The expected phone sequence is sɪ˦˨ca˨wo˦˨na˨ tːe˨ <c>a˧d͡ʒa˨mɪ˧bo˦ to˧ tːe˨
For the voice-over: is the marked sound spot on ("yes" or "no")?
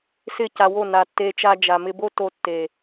no